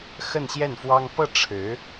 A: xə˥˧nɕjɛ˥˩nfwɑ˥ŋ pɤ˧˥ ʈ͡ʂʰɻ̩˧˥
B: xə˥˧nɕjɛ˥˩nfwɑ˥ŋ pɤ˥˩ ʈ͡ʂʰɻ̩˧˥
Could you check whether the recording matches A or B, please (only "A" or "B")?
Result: B